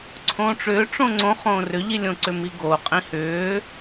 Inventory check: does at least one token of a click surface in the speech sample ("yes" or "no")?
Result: yes